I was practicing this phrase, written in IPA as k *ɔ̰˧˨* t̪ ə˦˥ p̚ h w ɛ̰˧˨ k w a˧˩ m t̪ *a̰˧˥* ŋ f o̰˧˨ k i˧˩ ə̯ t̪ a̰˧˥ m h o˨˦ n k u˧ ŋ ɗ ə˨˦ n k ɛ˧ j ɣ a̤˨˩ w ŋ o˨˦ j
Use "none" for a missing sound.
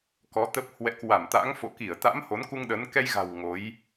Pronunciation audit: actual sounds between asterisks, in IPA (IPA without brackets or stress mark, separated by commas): ɔ˨˦, a̰˧˥